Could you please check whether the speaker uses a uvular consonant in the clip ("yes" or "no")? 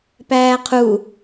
yes